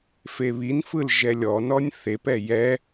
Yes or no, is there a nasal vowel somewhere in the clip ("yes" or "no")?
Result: no